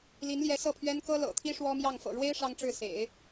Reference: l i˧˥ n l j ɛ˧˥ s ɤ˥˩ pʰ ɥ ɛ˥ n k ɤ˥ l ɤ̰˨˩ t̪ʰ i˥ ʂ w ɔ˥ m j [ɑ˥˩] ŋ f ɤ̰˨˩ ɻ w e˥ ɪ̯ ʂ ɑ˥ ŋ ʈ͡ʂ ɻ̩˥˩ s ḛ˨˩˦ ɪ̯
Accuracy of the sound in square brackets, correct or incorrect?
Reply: correct